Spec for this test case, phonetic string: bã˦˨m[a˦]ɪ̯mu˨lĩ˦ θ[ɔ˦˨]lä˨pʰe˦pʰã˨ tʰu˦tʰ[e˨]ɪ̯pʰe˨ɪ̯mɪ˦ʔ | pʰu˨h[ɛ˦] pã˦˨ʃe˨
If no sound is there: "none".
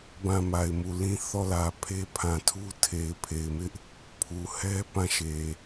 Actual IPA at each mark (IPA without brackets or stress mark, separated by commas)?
a˨, ɔ˦˨, e˨, ɛ˦